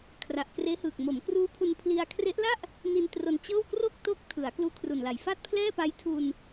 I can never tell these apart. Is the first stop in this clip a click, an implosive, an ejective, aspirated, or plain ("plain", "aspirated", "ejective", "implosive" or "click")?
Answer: aspirated